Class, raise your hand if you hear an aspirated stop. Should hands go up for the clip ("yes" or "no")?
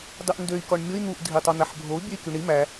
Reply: no